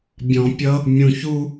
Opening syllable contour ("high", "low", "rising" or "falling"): low